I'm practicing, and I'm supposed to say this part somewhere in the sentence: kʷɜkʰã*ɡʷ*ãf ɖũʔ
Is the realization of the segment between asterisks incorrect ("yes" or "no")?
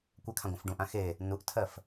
no